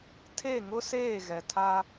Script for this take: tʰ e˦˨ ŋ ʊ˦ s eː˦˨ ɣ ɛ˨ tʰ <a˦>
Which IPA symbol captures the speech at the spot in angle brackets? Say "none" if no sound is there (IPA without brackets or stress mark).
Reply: a˦